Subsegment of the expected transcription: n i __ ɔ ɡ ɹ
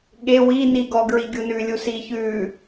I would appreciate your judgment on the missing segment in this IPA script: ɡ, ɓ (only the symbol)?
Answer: ɡ